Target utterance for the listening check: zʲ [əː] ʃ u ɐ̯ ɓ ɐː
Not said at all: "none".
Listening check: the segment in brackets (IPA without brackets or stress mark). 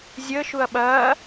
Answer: əː